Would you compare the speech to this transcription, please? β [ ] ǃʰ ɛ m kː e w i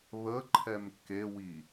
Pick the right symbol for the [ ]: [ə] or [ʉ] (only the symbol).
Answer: ə